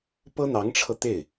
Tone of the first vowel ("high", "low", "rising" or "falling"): high